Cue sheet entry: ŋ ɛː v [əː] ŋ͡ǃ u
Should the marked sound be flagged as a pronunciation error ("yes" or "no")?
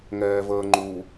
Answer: no